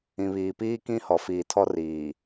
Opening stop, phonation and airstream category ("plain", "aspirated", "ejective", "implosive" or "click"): plain